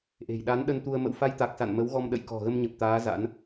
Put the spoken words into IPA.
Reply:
ʔ e̤˨˩ j ɗ a˨˦ n ɗ ə˧ n t̪ u˧ ə̯ m ə̰˧˨ w f a˧ j t̪ a˨˩ k̚ s a̰˧˨ n m ə˨˦ w ɣ ɔ˧ m ɗ ə̰˧˨ j k ɔ̤˨˩ ɣ ə˧ m ɲ ə˨˩ p̚ t̪ aː˨˦ z a̰˧˥ n

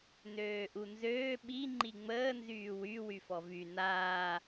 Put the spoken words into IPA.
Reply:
n øː ʔ u n z øː ɓ i ŋ͡ǃ i ŋ͡m əː n z yː w y w y f ɔ v y n aː

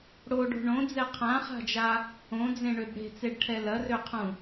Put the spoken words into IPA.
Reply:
ɽ o ɖ o̤ ɳ õ d͡z ɛ qʰ ã χ a̤ d͡ʒ a | õ d͡z ẽ ɳ ø b ɽ e̤ t͡s e ɖ ʈʰ ɛ l ɐ r ø qʰ ũ

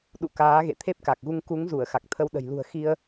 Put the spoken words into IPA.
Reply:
ɗ ṵ˧˨ k aː˨˦ ɣ ḛ˧˨ t̪ʰ e˦˥ p̚ k a˨˩ k̚ ɣ u˧ ŋ k u˨˦ ŋ z u˧˩ ə̯ x a˨˩ k̚ t̪ʰ ə˧ w ɗ ə̤˨˩ j l ṳ˨˩ ə̯ x i˧ ə̯

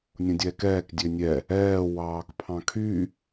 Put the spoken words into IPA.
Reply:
nʲ õ dʲ ɛː k ɛː k dʲ ø nʲ ɛ | ɛː w ɑː k pʰ ɑ̃ kʰ y

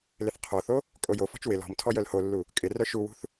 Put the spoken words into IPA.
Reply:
l ɪ θ qʰ o θ o | kʼ o j o f ɔ̤ t͡ʃ w ɪ l ɔ̤ m tʰ ɔ j œ l h o lː u | kʼ ɪ r œ ʃ u w ṳ θ

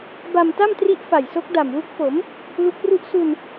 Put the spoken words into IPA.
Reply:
b a˧ m t a˥˩ m t r i˥˩ ʔ f a˨˩ j s o˦˥ k̚ d a˨˩ m w u˦˥ k̚ f o˩˦ m | l u˦˥ k̚ r u˥˩ ʔ s u˧ n

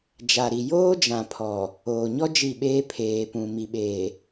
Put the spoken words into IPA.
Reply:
d͡ʒ a˨ ɾ i˨ j oː˦ d͡ʒ ã˨ pʰ ɔ˨ | oː˨ ɲ ɔ˦ d͡ʒ i˦˨ ɓ eː˦ pʰ eː˨ p ũ˨ m i˨ ɓ eː˨

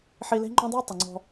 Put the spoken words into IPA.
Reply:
ħ i˧ l e̤˦ ŋ͡ǃ õ˦ dˤ u˦ ə̯ tˤ ʊ˨ ŋ͡ǀ ɔ̤˧

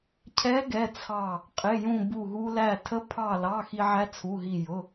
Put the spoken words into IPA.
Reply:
cʰ ɛ˧˥ ɡ ɛ˩˧˩ t͡sʰ ɑ˧˩ | qʼ ɪ˩˧˩ j ũ˧˩ b u˧˩ ɦ u˧ l æ˧˩ tʰ ə˧˥ pʰ ɑ˧˩ l ɑ˩˧˩ x i˧ ʕ æ˧˥ t͡sʰ u˩˧˩ ɦ i˧˩ j ʊ˩˧˩

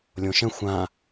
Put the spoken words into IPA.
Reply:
lʲ õ ʃ ə̃ xʷ ã

